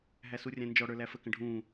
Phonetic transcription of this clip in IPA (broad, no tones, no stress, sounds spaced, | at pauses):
ɦ æ s u rʲ æ̃ n d͡ʒ ɔ ɽ ə˞ l æ f ə k ə̃ ɖʱ ũː